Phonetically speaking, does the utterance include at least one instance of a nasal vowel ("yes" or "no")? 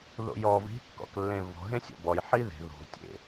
yes